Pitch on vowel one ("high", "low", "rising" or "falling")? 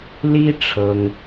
high